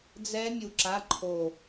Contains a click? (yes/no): yes